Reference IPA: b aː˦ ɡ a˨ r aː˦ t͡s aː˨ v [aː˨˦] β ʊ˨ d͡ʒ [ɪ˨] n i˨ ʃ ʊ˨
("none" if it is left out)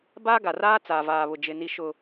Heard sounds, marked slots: aː˨, ɪ˨

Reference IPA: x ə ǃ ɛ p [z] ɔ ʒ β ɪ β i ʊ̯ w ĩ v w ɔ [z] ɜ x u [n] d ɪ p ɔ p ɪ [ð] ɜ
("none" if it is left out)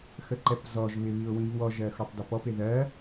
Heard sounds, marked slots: z, ʒ, tˤ, ð

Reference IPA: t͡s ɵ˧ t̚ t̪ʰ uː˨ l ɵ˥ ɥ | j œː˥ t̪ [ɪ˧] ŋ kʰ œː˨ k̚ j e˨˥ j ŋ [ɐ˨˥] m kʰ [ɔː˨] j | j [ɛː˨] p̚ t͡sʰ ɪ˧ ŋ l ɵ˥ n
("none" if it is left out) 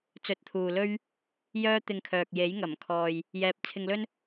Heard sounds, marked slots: ɪ˧, ɐ˨˩, ɔː˨, ɛː˨

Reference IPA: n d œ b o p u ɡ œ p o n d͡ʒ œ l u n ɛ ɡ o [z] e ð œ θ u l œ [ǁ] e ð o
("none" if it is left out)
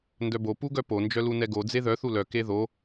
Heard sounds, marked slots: d͡z, k

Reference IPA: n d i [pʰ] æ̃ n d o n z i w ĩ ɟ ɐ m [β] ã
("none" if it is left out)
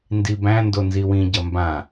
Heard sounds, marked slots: b, b

